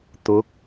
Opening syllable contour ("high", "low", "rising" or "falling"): rising